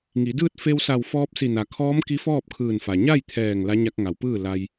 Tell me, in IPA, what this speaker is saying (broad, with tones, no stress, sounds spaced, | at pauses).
ŋ i˩˧ d ɯː˥˨ t̚ f e˧ w s a˧˩ w f ɔː˧ p̚ s i˧˩ n a˩ kʰ ɔː˧˥ m k i˧˥ f ɔː˥˨ p̚ kʰ ɯː˧˩ n f a˩ ɲ a˥˨ j t̪ʰ ɛː˧˩ ŋ l a˧˥ ɲ a˧ k̚ ŋ a˩˧ w p ɯː˥˨ l a˧ j